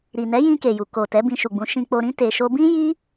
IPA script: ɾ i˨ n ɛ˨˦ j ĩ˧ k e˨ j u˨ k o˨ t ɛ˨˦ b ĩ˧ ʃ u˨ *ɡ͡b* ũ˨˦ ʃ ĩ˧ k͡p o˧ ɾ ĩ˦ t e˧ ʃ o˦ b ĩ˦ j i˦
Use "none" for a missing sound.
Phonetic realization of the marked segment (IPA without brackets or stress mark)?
ɡ͡b